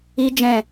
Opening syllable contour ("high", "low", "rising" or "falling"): high